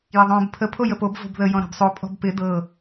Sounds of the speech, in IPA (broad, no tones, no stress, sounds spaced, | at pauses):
j ɪ ðˤ õː b pʰ ə pʰ o j ə p o b v o̤ b ð ə j ɔ̃ ɾ a̤ b sˤ o pʼ ɔ̤ b p ɪ d ɤ